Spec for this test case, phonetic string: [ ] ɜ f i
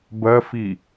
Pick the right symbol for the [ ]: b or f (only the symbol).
b